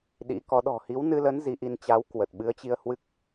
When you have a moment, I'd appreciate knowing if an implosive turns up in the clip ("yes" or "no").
yes